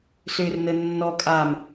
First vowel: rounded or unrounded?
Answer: rounded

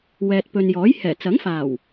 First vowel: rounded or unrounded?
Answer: unrounded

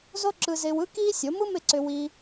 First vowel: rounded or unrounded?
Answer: rounded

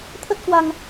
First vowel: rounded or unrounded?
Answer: unrounded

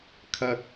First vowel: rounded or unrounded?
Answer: unrounded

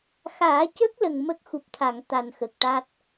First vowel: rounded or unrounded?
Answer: unrounded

